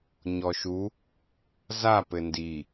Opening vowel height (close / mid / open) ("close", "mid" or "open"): mid